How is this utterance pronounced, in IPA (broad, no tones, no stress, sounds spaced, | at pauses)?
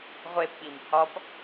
ʁʷ e p ɓ i m h ɒ p